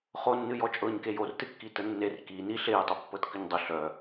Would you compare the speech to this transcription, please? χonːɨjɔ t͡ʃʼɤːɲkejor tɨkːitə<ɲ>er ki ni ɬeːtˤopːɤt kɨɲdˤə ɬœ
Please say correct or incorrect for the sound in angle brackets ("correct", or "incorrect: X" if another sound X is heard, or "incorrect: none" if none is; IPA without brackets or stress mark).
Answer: incorrect: nː